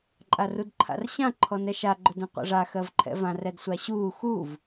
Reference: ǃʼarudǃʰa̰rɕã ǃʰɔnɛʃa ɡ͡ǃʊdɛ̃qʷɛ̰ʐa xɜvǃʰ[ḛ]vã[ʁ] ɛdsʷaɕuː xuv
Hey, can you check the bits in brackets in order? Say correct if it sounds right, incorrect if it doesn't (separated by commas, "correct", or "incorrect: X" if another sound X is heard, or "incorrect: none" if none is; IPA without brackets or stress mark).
incorrect: ɛ̰, incorrect: r